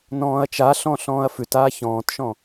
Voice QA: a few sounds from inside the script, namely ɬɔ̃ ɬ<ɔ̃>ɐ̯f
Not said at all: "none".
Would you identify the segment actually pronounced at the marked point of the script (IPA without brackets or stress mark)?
ɔ̃ː